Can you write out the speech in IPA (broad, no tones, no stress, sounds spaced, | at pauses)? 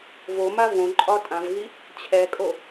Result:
v o m a v õ ǃʼ ɒ tʼ ã v ɣ i | t͡ɕʰ ɛ kʼ o